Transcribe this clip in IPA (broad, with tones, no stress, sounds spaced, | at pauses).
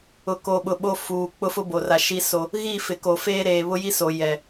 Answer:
ʊ˨ k o˨ ɓ ʊ˨ ɓ o˦ f uː˨ k͡p ʊ˦ f ʊ˦ b o˨ r a˨ ʃ i˦ s o˦ | ɣ i˦˨ f ɪ˨ k o˨ f eː˦ ɾ eː˨ β ʊ˦ j i˦ s o˨ j ɛ˨